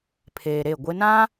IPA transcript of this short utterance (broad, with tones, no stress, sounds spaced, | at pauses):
pʰ eː˨ ɾ e˦˨ ɡʷ ɪ˦ n ã˦